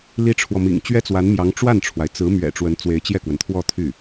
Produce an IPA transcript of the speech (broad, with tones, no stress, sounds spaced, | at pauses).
l i˥ ʈ͡ʂʰ w ɔ˨ m ḭ˨˩ ŋ t͡ɕ ɥ ɛ˥ t͡s w a˧˥ n m j ɑ˧˥ ŋ ʈ͡ʂ w a˥˩ n ʈ͡ʂʰ w a˩ ɪ̯ t͡s ɹ̩˧˥ m ɥ ɛ̰˨˩ ʈ͡ʂ w ə˧˥ n t͡s w e˧˥ ɪ̯ t͡ɕ j ɛ˥˩ k w ə˩ n t̪ʰ w ɔ˥˧ t̪ʰ y˥˩